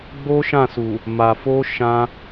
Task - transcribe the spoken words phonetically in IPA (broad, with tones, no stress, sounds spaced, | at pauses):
ɡ͡b o˦ ʃ ã˦˨ s u˨ | m a˨ f o˧ ʃ ã˧